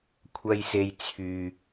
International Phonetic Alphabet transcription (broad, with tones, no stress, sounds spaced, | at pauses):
kʷʰ ɐ˨ j s e˨ j t͡sʰ yː˨